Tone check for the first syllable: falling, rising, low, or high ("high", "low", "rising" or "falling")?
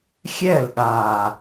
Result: falling